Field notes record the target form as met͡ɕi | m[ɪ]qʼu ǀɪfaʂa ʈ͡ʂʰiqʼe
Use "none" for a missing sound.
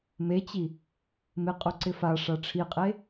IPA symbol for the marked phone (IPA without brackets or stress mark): ɪ